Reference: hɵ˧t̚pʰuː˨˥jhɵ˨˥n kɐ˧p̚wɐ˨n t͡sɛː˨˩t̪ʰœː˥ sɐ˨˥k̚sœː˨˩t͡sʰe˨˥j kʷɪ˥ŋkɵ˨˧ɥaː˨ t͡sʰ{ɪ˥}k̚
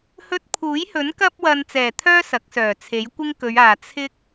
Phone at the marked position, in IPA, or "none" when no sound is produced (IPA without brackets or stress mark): ɪ˥